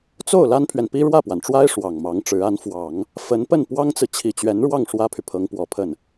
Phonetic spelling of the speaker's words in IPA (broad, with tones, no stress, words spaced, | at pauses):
t͡so˥˩ʊ̯ la˥npʰɥɛ˨npi˥ ɻwä˥˩pwa˩nʈ͡ʂwa˥ɪ̯ ʂwɑ˨˩ŋmɑ˧˥ŋʈ͡ʂɻ̩˧˥ a˧˥nfwɑ˨˩˦ŋ | fə˧˥npə˥˩n pwɑ˥ŋt͡sɹ̩˨ t͡ɕʰi˨˩t͡ɕɥɛ˧˥nɻwɑ˥˩ŋ ʂwä˥pʰy˨pʰɤ˧˥ŋpwɔ˨˩ pʰə˥˩n